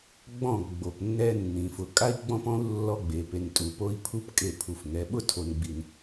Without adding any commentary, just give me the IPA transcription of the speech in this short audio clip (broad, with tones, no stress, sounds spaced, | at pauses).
ɡ͡b ɔ̃˦˨ ɡ͡b o˨ p nː ɛ˦ nː ĩ˨ f ʊ˨ kʼ a˦ i̯ ɡ͡b ɔ̃˦ p ɔ̃˦ u̯ lː ɔ˦ ɡ͡b e˨ p e˨ n tʼ u˨ p o˦ i̯ pʰ u˦ p kʼ e˦˨ pʰ u˨ f ŋ ɛ˨˦ ɓ ʊ˦ tʰ o˨ n ɡ͡b i˨ n